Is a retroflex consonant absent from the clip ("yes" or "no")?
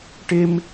no